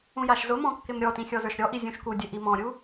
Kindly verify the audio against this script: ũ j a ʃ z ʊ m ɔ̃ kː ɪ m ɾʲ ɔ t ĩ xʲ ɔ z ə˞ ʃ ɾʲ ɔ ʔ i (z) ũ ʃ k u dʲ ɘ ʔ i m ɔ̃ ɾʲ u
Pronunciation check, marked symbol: incorrect: zʲ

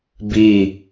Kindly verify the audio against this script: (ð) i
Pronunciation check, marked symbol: incorrect: b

